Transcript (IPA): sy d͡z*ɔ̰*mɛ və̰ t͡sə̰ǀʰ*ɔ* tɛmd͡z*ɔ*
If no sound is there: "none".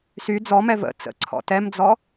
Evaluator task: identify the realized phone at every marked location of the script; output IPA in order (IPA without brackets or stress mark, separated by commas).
ɔ, ɔ̰, ɔ